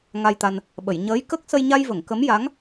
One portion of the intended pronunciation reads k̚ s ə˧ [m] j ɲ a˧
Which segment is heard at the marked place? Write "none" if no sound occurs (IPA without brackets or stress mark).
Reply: none